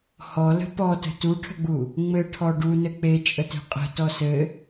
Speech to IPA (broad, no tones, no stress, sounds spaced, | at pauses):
h ɔ l ə̤ p ɔ t ə̤ t u ʈʰ ə̤ ɡ͡b u | ŋ͡m ɘ ʈʰ ɔ ɖ u n ɘ k͡p e t͡ʃʼ ə t e̤ qʼ ə̤ t ɔ s ɘ